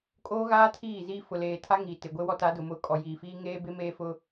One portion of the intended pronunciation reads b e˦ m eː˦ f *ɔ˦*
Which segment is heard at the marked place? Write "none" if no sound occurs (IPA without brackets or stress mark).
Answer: ʊ˦